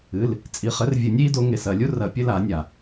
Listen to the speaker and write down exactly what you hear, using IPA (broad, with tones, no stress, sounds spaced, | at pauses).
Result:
ɨ˩˧˩ l | t͡sʼ i˩˧˩ χ ɘ˨˥ r vʲ ɨ˨˩˦ nʲ i˨˥ d o˨˥ ŋ e˩˧˩ s ɐ˦˨ lʲ u˥ r ɐ˨˩˦ pʲ ɘ˨˥ l a˨˩˦ nʲ a˩